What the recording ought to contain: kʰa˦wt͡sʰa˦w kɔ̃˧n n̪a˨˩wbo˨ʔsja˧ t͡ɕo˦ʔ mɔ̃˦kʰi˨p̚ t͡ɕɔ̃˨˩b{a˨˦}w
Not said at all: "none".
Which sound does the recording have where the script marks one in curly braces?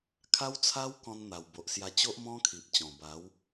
a˨˦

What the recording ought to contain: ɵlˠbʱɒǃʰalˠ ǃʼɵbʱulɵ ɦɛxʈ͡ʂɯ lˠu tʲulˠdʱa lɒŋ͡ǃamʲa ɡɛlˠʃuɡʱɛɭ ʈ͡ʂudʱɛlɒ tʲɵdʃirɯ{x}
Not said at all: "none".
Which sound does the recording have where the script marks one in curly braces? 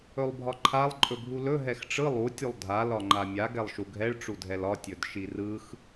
x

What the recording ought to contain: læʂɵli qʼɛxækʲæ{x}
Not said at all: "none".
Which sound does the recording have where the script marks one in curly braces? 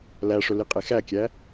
none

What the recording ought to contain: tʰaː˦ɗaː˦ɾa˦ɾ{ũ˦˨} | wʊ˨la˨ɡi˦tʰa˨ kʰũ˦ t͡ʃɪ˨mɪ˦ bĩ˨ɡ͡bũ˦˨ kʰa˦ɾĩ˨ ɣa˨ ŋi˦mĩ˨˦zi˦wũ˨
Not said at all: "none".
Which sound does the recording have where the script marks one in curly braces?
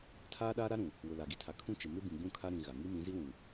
ũ˨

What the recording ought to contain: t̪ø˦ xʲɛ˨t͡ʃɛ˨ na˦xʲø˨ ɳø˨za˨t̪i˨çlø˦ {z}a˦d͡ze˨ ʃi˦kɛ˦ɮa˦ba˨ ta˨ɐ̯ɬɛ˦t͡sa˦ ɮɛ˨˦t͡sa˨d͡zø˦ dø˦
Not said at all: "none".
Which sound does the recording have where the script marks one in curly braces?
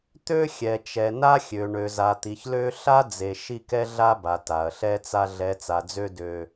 ɬ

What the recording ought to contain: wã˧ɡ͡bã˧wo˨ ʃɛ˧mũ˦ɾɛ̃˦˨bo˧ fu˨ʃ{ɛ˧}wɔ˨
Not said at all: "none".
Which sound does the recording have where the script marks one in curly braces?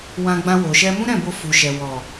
ɛ˨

